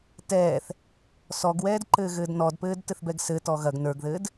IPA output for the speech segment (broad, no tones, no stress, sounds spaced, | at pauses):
t ɛː θ | s ɔ ɡ w ɛː d ǃ ɘː ɣ ɘː d n ɔ d p ɘː d t ɘ θ b ɛ ɡ s ɘ t ɔ ɣ ɐ ɡ n ə˞ ɡ ð ɘː d